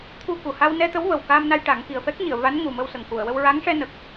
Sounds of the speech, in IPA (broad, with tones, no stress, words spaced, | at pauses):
t̪ʰu˧ku˨˩ ha˧wnɛ˧t̪ə˧˥w və˨˩wka˧mna˧j ʈa˨˩˦ŋki˨˩ə̯fɛ˦˥k̚ɲi˨˩˨ə̯ va˧˥nŋu˨˩mə˧wsə˨˩ŋ ku˨˩˨ə̯wə˧w ɹa˧˥ŋʂɛ˧ nə˨˩k̚